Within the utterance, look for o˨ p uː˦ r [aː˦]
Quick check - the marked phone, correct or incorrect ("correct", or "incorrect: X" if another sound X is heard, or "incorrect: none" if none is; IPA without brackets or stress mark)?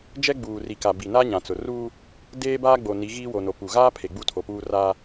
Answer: incorrect: a˦